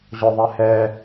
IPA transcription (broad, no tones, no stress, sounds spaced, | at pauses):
ʑ ɔ ðˤ ɛ h ɛ